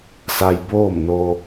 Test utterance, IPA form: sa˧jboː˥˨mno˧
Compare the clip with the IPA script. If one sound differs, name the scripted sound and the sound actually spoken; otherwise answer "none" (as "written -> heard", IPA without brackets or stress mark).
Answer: none